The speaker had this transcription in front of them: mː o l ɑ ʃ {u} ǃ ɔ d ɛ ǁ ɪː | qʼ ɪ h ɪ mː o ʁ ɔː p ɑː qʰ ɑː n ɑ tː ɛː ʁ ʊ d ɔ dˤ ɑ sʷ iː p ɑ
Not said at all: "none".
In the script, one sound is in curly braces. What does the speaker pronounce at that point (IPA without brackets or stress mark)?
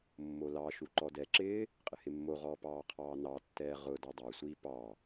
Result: u